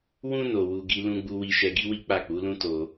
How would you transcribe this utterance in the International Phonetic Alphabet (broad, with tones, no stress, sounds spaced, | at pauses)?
w ũ˧ n o˧ w u˧ ɡ i˦ l ũ˧ ɡ͡b u˧ w i˧ ʃ ɛ˧ ɡ i˦ w i˦ k͡p a˦˨ k͡p u˨˦ l ũ˦ t o˧